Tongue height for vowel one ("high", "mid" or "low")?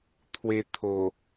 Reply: mid